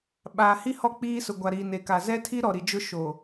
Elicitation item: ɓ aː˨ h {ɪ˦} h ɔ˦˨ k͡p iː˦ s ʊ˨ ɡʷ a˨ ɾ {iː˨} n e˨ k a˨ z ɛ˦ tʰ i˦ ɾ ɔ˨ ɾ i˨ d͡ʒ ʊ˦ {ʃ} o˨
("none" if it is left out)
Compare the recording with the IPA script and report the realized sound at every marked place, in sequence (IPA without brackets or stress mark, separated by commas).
i˦, iː˨, ʃ